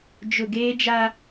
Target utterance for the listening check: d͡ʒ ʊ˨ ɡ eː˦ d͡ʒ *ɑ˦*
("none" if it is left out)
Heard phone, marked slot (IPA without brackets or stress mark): a˦